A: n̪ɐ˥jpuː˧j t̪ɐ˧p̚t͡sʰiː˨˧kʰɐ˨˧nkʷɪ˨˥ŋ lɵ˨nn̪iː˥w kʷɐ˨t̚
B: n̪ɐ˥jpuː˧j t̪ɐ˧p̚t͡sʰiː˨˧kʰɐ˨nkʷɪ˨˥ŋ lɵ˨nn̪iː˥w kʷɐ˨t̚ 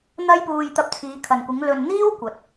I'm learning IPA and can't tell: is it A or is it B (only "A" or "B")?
B